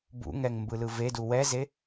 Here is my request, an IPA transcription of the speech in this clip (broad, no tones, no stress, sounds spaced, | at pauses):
b ṵ ŋ ɛ ŋ m b ɯ l ɯ v e d u w ɛ z e